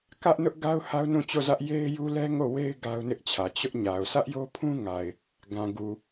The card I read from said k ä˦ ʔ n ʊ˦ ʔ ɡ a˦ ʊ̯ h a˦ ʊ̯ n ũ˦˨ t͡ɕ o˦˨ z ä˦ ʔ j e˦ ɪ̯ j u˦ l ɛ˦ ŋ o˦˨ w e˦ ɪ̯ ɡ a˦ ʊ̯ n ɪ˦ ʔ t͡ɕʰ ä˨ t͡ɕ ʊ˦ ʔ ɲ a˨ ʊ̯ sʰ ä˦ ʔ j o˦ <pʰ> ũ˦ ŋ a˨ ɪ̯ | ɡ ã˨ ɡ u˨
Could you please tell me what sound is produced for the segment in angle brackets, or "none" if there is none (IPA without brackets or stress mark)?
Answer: pʰ